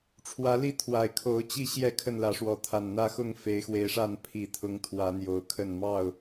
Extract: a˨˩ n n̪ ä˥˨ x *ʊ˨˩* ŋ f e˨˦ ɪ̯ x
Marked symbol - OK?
no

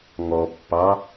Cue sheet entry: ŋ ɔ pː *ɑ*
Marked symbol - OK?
yes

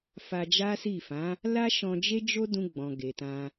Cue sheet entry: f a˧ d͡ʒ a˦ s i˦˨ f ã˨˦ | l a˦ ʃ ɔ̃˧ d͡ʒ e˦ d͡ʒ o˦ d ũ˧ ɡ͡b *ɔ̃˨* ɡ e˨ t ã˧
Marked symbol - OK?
yes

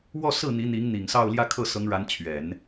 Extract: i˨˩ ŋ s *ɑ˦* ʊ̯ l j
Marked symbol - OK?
no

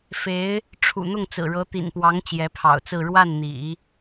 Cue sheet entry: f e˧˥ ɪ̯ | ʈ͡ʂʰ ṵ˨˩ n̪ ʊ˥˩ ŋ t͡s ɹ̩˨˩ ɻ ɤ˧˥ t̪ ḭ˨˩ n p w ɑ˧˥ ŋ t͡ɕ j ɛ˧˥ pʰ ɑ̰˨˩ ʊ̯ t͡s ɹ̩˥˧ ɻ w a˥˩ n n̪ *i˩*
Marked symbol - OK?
no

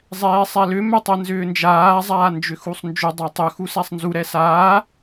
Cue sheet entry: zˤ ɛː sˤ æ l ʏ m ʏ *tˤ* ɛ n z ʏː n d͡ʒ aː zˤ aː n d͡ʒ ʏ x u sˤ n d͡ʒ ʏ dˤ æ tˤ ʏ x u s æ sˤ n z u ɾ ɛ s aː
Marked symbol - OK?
yes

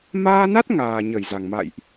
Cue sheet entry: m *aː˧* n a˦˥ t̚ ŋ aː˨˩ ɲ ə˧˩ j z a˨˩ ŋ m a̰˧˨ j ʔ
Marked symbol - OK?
yes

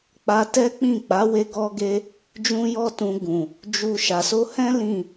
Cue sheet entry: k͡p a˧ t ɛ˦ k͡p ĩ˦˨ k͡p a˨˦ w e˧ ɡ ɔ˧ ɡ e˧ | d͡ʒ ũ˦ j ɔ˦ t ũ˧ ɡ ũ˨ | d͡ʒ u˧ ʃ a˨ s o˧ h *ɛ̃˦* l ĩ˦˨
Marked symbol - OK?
yes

